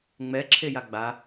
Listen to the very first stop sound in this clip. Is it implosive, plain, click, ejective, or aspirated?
click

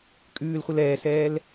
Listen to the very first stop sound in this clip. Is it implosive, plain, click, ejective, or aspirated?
ejective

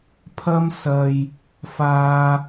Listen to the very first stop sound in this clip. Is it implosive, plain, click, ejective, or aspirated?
aspirated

